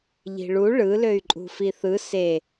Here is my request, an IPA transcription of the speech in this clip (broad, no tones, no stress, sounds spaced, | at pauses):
ʎ i̤ ɭ u ɭ ɯ l ø y̯ ǃʼ ṳ f i θ ɯ s e